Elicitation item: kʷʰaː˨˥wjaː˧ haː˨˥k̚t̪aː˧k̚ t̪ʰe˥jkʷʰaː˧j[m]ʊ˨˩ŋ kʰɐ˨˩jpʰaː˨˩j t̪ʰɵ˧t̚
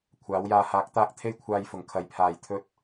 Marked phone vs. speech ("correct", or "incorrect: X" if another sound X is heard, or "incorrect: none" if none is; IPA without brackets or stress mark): incorrect: f